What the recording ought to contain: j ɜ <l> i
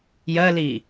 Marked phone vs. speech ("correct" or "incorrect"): correct